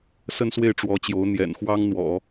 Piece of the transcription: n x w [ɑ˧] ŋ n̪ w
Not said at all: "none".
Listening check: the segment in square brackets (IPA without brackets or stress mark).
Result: ɑ˥